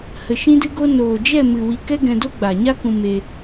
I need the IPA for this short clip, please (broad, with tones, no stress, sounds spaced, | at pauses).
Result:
h ə˧ ʃ ĩ˦ d ɨ˦ ɡ o˦ n oː˨ d͡ʒ ɛ˦˨ m ɨ˨ w i˧ k ɛ˦ ɡ ɛ̃˧ d o˦ ɡ͡b a˨ ɲ a˦ k ũ˧ m e˧